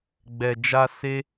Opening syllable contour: low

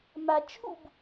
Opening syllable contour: low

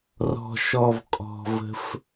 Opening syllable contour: low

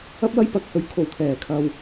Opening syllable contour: high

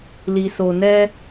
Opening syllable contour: low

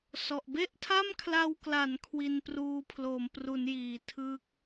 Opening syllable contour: low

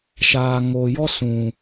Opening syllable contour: low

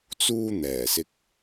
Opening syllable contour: high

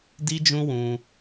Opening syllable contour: high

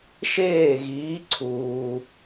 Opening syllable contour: falling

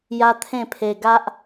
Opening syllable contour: high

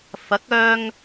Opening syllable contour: rising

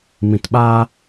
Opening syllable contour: low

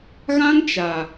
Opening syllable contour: high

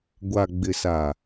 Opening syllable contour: low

